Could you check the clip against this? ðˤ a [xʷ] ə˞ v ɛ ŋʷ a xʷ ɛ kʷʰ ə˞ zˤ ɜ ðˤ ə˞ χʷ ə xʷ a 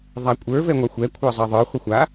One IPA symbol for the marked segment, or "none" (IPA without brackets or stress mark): kʷʼ